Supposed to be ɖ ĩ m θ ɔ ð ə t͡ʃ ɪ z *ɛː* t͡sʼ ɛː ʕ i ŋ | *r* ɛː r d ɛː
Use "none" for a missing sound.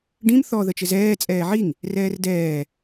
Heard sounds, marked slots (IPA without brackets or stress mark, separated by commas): ɛː, r